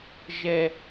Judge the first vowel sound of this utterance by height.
mid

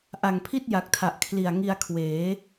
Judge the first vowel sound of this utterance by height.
low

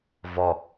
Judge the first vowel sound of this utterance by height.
mid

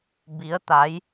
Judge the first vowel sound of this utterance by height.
high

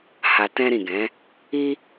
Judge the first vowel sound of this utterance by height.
low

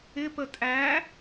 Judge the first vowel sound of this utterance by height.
high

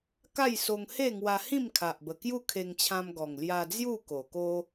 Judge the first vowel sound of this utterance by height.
low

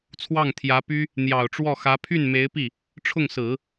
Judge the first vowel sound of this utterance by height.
low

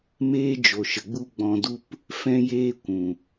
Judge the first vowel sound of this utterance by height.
mid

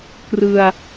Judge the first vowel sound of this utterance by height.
high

